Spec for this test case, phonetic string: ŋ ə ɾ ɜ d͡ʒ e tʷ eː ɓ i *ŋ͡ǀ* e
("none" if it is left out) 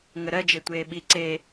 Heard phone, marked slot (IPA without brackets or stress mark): ǀ